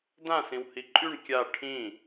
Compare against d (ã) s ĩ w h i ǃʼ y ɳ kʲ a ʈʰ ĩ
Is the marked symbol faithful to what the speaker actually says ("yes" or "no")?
yes